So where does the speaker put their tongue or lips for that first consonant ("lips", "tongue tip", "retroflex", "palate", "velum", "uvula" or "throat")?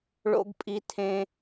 retroflex